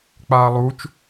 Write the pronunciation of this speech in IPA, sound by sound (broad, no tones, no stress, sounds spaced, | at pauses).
k͡p aː lˠ u t͡ʃ